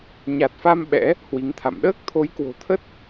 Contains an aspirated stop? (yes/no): yes